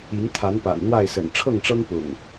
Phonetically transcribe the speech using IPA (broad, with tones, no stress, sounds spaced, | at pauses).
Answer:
i˨˦ ŋ t̪ʰ a˨˦ n p a̰˨˩ n n̪ w a˥˨ ɪ̯ s ə̰˨˩ n ʈ͡ʂʰ ɤ˥˨ ŋ ʈ͡ʂ ɤ˦ ŋ p ʊ̰˨˩ ŋ